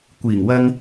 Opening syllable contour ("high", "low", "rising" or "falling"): low